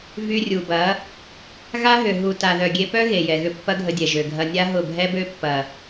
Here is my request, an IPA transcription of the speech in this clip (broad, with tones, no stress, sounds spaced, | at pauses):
v y˧ rʲ u˨ b ɐ˨˦ | ɣ a˦ ɦ ʏ˨ ɦ u˨ t a˨ ð œ˨ ɡʲ e˧ p œ˦ ɣ e˨ j ɛ˨ ɣ ʏ˧ pː ɐ˦ ɡʱ ə˧ dʲ ɛ˨ ʒ ø˨ ɡʱ ɐ˧ nʲ a˦ ɦ ʊ˦˨ bʱ ɛ˧ b ø˧ pː ɐ˨